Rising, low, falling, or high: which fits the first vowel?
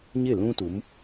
falling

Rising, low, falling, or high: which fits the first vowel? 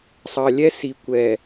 low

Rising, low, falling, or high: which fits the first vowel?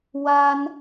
high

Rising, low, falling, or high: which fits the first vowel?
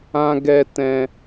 high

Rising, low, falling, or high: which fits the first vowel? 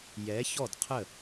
rising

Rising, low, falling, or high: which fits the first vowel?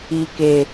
low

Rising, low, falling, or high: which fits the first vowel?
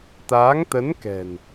rising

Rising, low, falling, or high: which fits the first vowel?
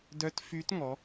rising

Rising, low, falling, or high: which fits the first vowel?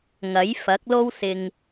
rising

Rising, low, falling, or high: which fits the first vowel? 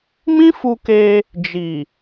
high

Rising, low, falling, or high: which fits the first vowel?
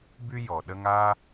high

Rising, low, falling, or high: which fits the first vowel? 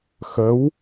rising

